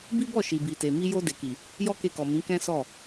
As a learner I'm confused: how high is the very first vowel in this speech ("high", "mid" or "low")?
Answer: high